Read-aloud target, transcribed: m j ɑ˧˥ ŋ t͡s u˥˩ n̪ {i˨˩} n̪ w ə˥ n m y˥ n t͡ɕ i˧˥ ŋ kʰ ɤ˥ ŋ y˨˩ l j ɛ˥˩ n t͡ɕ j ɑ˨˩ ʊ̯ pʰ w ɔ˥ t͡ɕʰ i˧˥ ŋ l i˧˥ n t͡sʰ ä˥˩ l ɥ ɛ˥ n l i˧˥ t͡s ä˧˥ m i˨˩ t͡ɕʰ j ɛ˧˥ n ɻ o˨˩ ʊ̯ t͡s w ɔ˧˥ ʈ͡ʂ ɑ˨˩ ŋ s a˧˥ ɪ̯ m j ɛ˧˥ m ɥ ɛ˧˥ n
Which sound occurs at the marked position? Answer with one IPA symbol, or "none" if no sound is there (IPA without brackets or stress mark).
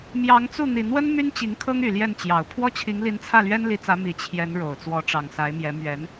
i˨˩